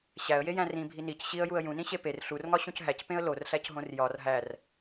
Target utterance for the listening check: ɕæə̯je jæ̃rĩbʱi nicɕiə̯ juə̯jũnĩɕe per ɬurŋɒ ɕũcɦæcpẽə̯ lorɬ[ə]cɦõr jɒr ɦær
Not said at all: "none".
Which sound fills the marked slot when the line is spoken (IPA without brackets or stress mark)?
æ